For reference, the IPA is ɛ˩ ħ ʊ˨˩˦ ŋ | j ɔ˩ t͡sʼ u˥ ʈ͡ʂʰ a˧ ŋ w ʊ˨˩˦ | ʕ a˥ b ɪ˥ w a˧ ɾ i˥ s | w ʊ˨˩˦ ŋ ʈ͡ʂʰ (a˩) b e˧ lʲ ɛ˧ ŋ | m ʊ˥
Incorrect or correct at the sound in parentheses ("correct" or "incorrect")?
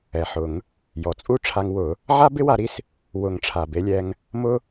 correct